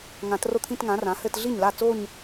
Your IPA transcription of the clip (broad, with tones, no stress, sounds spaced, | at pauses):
ŋ ã˨˩˦ t r o˥˩ t̪ʰ ĩ˥˧ t ŋ ã˩˥ r ã˩˥ h ɘ˥˧ t ɮ i˥˩ ɲ l a˥˩ t͡s o˥˧ ɲ